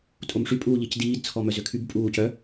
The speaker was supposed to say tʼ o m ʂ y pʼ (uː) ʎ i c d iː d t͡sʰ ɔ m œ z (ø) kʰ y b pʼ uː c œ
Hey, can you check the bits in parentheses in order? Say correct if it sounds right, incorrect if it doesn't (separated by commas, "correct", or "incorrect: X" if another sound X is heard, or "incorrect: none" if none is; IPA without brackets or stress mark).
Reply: correct, correct